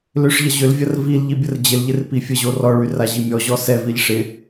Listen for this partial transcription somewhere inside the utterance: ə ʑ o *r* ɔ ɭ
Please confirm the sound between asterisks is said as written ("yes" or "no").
yes